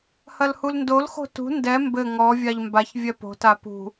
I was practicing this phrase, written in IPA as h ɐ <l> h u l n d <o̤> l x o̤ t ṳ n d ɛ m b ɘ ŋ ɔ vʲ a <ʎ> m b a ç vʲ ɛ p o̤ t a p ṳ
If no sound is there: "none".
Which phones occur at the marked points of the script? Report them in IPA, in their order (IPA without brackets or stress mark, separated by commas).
l, o, ʎ